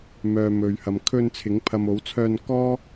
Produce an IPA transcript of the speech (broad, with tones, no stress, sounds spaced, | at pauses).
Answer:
m œː˨ m ɵ˨ ɥ h ɐ˨ m kʰ ɵ˧ n t͡sʰ ɪ˨˧ ŋ pʰ ɐ˨ m o˨˧ w t͡sʰ œː˧ n k ɔː˥